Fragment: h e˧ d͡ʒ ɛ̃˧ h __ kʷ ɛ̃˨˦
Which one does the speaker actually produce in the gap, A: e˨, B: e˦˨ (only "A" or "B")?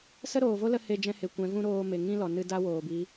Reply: A